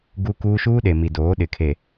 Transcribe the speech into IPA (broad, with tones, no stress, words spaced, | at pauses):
ɡuː˦kuː˦ ʃuː˦ɗe˨mi˨ doː˨˦ɗɪ˨kʰe˨